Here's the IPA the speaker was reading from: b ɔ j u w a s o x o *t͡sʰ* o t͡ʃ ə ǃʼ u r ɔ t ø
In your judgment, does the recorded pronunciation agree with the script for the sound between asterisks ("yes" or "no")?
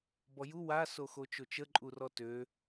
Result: no